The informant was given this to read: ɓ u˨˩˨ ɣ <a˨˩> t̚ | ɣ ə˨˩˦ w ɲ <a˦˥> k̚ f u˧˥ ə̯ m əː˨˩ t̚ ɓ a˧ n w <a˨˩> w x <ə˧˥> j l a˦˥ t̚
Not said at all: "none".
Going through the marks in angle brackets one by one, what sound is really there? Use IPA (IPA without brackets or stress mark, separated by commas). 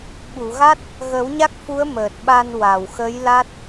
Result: a˦˥, a˦˥, a˨˩, ə˧˥